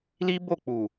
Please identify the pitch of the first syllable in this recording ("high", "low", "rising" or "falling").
high